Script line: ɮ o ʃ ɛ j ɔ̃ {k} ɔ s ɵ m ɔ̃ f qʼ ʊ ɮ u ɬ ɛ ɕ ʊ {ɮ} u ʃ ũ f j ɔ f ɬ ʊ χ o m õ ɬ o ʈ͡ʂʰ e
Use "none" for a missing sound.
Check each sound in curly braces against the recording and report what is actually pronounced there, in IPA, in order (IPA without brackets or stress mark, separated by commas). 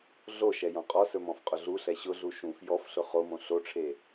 qʼ, ɮ